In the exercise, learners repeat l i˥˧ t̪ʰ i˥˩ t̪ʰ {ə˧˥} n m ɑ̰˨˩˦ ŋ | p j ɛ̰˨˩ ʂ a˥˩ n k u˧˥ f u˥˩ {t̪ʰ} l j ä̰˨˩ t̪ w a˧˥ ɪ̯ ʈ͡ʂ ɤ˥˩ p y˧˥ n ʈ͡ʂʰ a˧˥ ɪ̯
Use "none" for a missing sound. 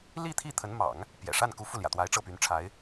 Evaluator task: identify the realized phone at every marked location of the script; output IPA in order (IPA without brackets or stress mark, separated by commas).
ə˧˥, none